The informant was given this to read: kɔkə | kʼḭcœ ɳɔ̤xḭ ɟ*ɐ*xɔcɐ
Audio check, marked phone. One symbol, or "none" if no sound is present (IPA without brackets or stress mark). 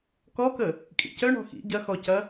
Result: ɐ